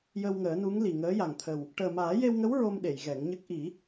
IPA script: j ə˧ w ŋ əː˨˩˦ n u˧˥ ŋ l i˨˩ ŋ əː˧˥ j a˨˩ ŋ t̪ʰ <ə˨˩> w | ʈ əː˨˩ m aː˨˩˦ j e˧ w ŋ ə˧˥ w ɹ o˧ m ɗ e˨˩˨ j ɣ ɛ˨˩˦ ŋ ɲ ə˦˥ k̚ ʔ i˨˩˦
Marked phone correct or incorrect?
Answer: correct